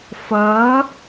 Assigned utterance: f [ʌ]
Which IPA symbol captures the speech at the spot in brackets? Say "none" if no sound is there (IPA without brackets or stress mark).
ʌ